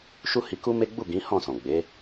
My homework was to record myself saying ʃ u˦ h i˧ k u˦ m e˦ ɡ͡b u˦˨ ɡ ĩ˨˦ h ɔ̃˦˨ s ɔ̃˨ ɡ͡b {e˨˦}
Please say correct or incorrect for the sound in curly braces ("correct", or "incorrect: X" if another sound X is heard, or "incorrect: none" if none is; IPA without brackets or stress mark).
correct